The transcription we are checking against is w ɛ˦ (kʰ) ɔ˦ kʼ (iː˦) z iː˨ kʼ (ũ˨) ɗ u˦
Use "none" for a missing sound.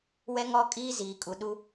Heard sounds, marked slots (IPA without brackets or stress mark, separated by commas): ŋ, iː˦, u˨